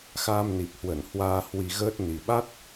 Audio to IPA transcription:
x aː˧ m n i˨˩ p̚ h w ə˧˩ n h w aː˧ h w i˧ ɣ əː˦˥ t̚ n i˨˩ ɓ a˦˥ t̚

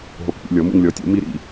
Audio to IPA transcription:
ɦ o˨ k p ḭ˨ lʲ ɔ˩˥ m ṵ˨ ŋ lʲ ɔ˩˥ tʲ o̰˩˥ m i˥˩ ɾ ḭ˨

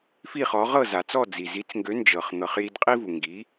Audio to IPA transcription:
f i˥˩ χ ɔ˩˥ ʁ ɤ˥˩ z a˩ t͡s ɔ˥˩ d͡z i˩ z i˩˥ t͡s ŋ ɡ ø˩˥ n d͡ʒ ɤ˩ χ n̪ ɤ˩ χ j i˧ d qʼ i˥ v u˩ ŋ ɡ i˩˥

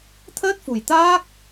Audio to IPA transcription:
t̪ʰ əː˦˥ t̚ f u˨˩ j t̪ aː˦˥ k̚

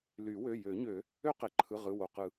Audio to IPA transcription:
l y˨˩˦ w ø˩˧˩ j ø˨˩˦ ɲ ø˨˩˦ | ø˦ q e˩ ǃʰ ɯ˩˧˩ ʁ ɯ˩˧˩ w o˩ q ɯ˨˩˦

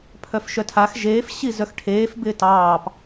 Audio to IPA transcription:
pʰ œ f ʃ œ tʰ a x ʒ eː f ɕ i z œ x ʈʰ eː f b ɪː t ɑː p

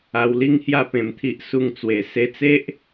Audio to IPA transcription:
a˧ w l i˦ ŋ h j a˥˧ p ẽ˧ m t̪ʰ i˦ ʔ s u˥˧ ŋ t͡s w e˧ s e˧ t͡s e˦ ʔ

